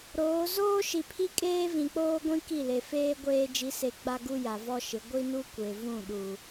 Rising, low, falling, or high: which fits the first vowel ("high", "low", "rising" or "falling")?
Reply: rising